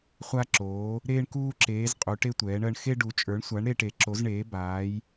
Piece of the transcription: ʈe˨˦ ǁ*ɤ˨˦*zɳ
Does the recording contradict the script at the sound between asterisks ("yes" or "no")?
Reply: yes